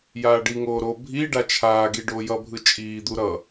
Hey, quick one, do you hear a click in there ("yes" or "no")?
no